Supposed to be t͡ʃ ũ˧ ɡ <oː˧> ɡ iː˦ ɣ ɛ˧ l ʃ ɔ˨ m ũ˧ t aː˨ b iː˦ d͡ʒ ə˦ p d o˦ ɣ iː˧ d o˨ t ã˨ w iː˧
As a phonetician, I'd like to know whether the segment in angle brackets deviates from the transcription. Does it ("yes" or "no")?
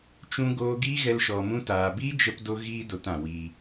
no